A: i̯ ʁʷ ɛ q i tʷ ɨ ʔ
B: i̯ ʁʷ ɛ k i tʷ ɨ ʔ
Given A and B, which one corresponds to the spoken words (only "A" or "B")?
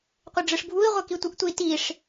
B